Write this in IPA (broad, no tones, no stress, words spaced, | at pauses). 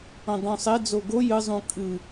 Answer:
õdˤũsˤed͡zo ɡo jɨzˤũ kʼɨ